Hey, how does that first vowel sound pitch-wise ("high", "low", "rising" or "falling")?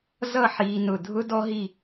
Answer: falling